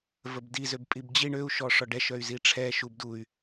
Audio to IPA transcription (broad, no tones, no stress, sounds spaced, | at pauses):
v ə b d i z ø b pʼ i b d͡ʑ i ɳ ø u̯ ʃ ɔ ʂ ɔ ɖ ɛ ʃ œ y̯ z i ʈ͡ʂʰ ɛ ʃ u b d u y̯